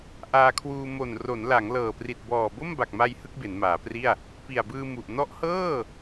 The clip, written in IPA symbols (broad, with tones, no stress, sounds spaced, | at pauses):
ʔ aː˧ kʰ w uː˧ m o˨˩ n r o˩˦ n l a˩˦ ŋ l ɤː˨˩ p r i˨˩ t̚ b ɔː˨˩ b o˥˩ m b a˨˩ k̚ m a˧ j h ɯ˥˩ k̚ b e˩˦ n m aː˩˦ p r i˥˩ a̯ | p i˨˩ a̯ b ɯː˧ m u˨˩ ʔ n ɔ˦˥ ʔ h ɤː˥˩